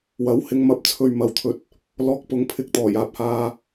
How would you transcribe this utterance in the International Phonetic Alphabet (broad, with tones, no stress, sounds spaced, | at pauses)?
w ɐ˨˥ w h ɪ˧ ŋ m ɐ˧ p̚ t͡sʰ ɵ˨ ɥ m ɐ˨ w t̪ʰ ɵ˨˥ t̚ | l ɔː˧ k̚ p ʊ˨˧ ŋ pʰ ɪ˧ k̚ t̪ ɔː˨˩ j aː˧ p̚ h aː˧